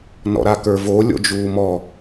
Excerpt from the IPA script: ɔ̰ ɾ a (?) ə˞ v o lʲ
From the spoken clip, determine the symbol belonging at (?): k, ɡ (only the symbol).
k